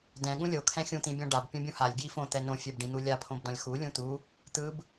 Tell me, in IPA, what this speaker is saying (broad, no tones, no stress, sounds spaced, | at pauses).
d ɛ̃ ɠ ũ lʲ o kʰ ɛ̃ xʲ ũ t̪ ĩ bʲ ɔ̃ ɖ a b pʲ õ bʲ ũ h a lʲ ɡ j i f õ t̪ ɛ n õ fʲ ɛ b ɖ ĩ n̪ u lʲ a pʰ õ b d ɔ̃ lʲ x u lʲ ũ t̪ u | t̪ ɯ b